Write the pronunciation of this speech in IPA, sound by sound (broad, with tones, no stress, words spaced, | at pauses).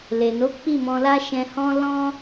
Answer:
le˨no˨˦ k͡pi˦˨mɔ̃˧la˦ ʃɛ̃˧hɔ̃˦ lɔ̃˦